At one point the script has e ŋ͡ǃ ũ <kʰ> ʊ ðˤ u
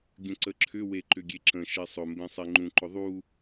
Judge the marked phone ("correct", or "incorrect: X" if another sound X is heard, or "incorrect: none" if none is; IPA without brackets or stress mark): incorrect: ǃ